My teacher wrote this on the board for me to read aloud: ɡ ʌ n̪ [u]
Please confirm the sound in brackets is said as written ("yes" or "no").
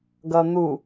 yes